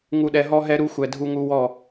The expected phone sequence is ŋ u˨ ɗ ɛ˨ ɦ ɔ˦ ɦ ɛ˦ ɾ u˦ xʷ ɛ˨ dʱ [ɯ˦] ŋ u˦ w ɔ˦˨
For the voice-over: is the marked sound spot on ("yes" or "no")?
no